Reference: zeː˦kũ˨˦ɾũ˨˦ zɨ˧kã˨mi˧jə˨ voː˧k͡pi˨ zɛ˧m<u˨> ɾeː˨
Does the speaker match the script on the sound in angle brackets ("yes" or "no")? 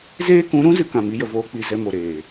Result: no